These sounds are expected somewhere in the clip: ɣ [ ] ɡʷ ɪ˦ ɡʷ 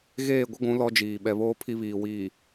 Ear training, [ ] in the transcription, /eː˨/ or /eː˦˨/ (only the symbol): eː˦˨